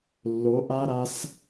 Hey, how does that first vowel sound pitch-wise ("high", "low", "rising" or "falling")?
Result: rising